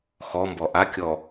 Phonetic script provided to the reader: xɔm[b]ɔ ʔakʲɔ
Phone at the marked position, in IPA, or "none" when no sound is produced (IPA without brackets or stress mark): b